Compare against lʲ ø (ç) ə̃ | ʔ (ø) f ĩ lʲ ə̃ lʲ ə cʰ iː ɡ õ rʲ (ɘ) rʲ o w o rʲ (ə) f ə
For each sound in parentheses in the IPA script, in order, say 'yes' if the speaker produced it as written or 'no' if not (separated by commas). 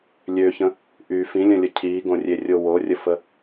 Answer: yes, no, no, yes